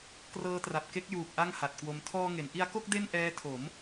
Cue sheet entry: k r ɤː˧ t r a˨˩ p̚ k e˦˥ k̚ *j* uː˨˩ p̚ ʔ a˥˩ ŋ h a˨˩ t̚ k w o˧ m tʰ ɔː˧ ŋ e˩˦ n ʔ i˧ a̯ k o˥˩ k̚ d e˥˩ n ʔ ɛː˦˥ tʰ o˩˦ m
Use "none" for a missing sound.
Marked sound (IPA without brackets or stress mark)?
j